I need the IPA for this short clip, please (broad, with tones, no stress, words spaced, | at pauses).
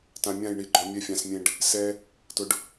tã˨mʲã˦˨jɳi˨ɡ͡ǃɔ˨ mʲɛ˨fʲã˨smʲẽ˨ɖ | sɛ˦ | tʊ˨ɖ